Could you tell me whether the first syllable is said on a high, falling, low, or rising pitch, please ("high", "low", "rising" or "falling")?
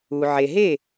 low